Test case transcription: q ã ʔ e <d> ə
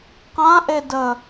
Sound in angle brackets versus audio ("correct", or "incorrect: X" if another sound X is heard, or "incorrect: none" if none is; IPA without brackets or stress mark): correct